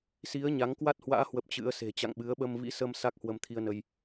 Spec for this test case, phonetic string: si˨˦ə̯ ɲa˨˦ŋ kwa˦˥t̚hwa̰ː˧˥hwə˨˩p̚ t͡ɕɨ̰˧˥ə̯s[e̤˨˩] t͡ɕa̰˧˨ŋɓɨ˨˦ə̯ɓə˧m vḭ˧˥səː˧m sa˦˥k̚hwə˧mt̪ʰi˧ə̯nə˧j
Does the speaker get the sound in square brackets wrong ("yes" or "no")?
no